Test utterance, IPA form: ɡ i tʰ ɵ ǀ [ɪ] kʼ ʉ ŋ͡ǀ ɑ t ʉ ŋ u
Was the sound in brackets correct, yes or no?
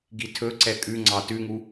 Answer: no